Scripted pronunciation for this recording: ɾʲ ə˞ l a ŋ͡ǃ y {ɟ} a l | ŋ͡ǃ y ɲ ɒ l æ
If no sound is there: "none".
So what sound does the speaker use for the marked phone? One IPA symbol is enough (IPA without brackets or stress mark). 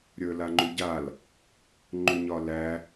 ɟ